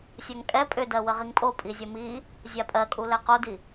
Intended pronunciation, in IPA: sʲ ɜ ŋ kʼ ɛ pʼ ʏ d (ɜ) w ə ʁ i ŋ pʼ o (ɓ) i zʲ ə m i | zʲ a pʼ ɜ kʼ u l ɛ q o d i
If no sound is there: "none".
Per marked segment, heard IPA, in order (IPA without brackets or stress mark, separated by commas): ɜ, pʼ